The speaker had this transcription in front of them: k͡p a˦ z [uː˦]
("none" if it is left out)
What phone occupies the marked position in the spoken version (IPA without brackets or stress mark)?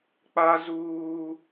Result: uː˦